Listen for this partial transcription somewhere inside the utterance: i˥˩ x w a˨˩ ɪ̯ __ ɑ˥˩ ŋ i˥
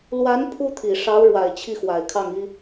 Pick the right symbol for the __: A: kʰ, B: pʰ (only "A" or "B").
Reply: A